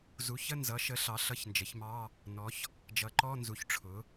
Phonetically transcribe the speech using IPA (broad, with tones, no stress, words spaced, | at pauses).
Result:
zu˩˥çə˧˥˧nzʌ˩˥ʃə˩˥ ɬɑ˩˥ɬʌ˧˥˧çnd͡ʒə˩˥çmɑ˧˥˧ | nɔ˩˥ç | d͡ʒʌ˩˥ǃɔ˧˥˧nzu˩˥ç ʈ͡ʂʰʊ˩˥